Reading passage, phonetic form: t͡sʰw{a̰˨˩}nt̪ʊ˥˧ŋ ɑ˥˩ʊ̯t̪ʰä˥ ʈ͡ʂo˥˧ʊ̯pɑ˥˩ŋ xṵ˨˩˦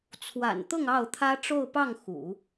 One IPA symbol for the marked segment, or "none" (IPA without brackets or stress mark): a̰˨˩